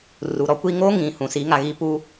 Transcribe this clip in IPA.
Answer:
r u˨ ɾ ɔ˦ kʷ i˦ ŋ o˦ ŋ ĩ˨ h ũ˨ s i˨˦ ŋ a˨ ɣ i˦ p u˦

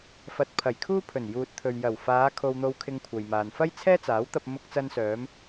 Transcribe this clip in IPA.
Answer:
f ɐ˧ t̚ pʰ ɐ˨˩ j kʰ uː˥ pʰ ɵ˨˩ n j uː˨ t̚ t̪ʰ ɵ˨ ɥ j ɐ˨˩ w f aː˨˧ kʰ o˧ w n̪ o˧ w kʰ ɪ˧ ŋ kʷʰ ɐ˨ j m aː˨ n f ɐ˥ j t͡sʰ ɛː˥ t͡s aː˨˥ w t̪ ɐ˧ p̚ m ʊ˧ k̚ t͡s ɐ˧ n s œː˨˧ m

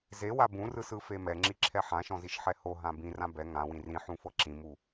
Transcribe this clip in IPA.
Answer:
z e w a b ũ r ɯ s ɯ f e m ɛ ŋ͡ǁ i ǁʰ ɛ ħ ã ʃ ɔ̃ z i ʃ ħ ɛ h o ɦ ã b ĩ r ã b ɛ ŋ ã w ĩ r ĩ ħ ũ f ɤ ǁ ĩ m u

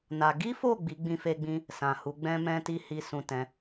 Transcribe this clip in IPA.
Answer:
n a˧ ɡ i˦ f o˦˨ ɡ͡b i˨˦ ɡ͡b ĩ˧ f e˧ ɡ͡b ĩ˧ | s ã˨ h u˨˦ ɡ͡b ɛ̃˦ m ɛ̃˦ t i˦ h i˧ s ũ˨ t ɛ̃˨˦

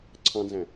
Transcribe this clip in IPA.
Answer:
ǀʰ ɑ̃ n z æ̃

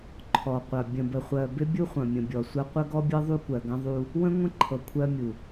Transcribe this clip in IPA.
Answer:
ǃʰ ɔ˨ qʷ ɐ˨ bʲ ə̃˨ b ə˨ χʷ ɜ˨ b ɪ˦ bʲ u˦ χʷ ɐ̃˨ mʲ ə̃˨ bʲ ɔ˨ sʷ ɐ˦ qʷ ə˦ ɡ ɔ˦ bʲ ɤ˦ ðˤ u˦ kʷ ɜ˨ ɡ ɐ̃˦ ðˤ u˦ | w ə̃˦ ŋʷ ə̃˦ ǃʰ ɤ˨ kʷʰ ɜ˦ mʲ u˨

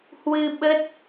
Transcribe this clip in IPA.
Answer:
h w ɨ˧ ɓ ə˦˥ t̚

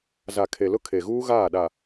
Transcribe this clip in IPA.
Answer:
z a˨ kʰ e˨ l ʊ˦ kʰ e˨ ɣ uː˦ ɣ aː˦˨ ɗ a˨

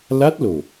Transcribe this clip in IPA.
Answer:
l a˦˥ t̚ l o˨˩

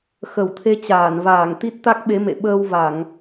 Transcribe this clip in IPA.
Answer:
x ə˧˩ w t̪ʰ e˧ t͡ɕ aː˧˩ n v aː˧˩ ŋ t̪ i˦˥ t̚ t̪ a˦˥ k̚ ɓ e˨˦ m ḛ˧˨ ɓ əː˧ w v a˧˩˨ ŋ

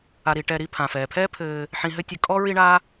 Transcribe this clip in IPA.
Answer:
a˨ ɾ i˨ ʈ ɛ˨ ɾ i˦ pʰ ã˩ f ɛː˩ pʰ ɛː˥ pʰ ɘː˨ | ħ ĩ˨ ɦ ɘ˦ tʲ ɘ˨ kʼ ɔ˥ ɹ i˦ ɳ a˦

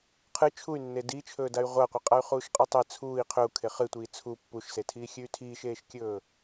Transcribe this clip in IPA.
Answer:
qʰ ɨ t͡ʃʰ u y̯ nː e d i t͡ʃʰ ɵː d a y̯ ʁʷ a qʷ ɨ qʼ a y̯ χ uː ʃ qʼ ɨ tˤ e t͡sʰ uː i̯ qʰ ɵ u̯ kʰ e χ ɨ tʷ iː t͡sʰ u pː u ʃ s e tʰ iː xʲ ʉ y̯ tʰ iː ʃ eː ʃ kʲ ɵː

